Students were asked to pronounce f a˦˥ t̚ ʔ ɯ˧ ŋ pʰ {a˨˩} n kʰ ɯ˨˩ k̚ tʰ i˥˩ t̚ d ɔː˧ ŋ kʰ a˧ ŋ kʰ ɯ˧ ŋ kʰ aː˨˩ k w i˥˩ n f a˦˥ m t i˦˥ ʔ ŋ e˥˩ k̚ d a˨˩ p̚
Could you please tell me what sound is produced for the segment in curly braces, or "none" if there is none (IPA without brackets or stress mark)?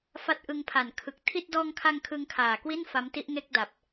a˨˩